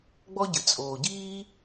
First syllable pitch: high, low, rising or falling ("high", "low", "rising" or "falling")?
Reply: high